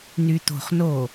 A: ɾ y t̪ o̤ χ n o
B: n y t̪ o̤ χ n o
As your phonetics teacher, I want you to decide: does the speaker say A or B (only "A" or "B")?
B